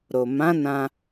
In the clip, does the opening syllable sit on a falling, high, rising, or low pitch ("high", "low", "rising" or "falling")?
low